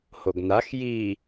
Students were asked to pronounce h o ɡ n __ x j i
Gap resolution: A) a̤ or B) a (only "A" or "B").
B